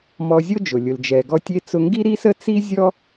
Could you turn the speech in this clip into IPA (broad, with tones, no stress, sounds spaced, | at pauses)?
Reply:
m ɔ˧ zʲ o˥ d͡ʒ ʊ˩ lʲ ʊ˩ l d͡ʒ ɛ˩ ɡ ɔ˧ tʲ e˧ t͡s ʊ˧ ŋ ɡ i˥ ɾ i˥ s ə˥ t͡s i˥ zʲ ɔ˥